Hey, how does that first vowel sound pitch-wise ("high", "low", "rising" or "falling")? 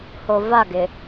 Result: low